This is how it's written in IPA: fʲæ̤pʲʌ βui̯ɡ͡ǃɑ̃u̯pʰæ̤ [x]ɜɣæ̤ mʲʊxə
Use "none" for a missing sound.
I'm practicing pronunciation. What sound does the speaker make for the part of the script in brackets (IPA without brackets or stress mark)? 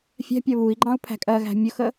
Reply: kʼ